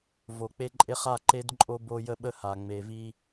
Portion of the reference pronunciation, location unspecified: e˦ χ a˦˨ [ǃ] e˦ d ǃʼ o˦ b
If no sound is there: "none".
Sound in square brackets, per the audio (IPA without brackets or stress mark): ǃ